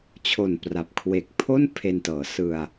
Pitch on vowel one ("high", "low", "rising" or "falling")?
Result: low